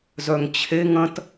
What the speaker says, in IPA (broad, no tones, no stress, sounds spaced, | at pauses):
z œ ŋ t͡ɕʰ e ŋ ɐ̃ t